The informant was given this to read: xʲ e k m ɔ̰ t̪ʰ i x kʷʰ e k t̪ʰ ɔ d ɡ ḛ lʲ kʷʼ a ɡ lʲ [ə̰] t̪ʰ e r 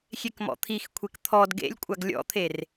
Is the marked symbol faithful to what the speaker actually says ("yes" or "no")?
no